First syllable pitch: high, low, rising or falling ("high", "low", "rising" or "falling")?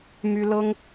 high